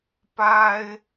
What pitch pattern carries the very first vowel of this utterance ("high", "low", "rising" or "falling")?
high